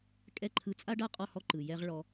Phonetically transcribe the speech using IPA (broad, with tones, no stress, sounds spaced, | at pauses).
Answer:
kʼ ɛ˦˨ ǃʰ ɯ˧ t͡sʼ a˦ ɖ a˦ qʼ ɔ˦ h ɔ˦ ǃ ɯ˨ j ɛ˦ ʁ ɭ ɔ˧